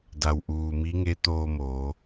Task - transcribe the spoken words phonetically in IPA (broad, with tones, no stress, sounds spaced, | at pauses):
d a˩ w ʔ uː˩ m i˧˥ ŋ e˧˥ t̪ oː˧ m oː˩˧